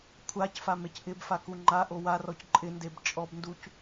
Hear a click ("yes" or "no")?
yes